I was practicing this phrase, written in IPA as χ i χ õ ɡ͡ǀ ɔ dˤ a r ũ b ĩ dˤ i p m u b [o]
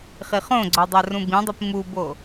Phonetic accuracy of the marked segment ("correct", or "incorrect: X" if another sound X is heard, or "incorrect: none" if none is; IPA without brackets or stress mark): correct